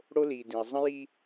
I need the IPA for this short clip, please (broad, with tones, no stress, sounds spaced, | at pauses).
ɽ o˦ l i˨ d ĩ˨ ə̯ zˤ ə̃˦ j i˦